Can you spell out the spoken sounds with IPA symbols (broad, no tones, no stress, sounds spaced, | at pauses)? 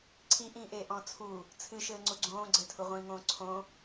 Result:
ǀʰ i ʔ ĩː ʔ eː ʔ ɔ̃ t͡sʰ u | t͡sʰ ɨ ʃ ɘː ŋ͡ǀ u ɡ͡ǀ õː ɡ͡ǀ ɘ tʰ u ʁʷ ĩː ŋ õː ǀʰ õ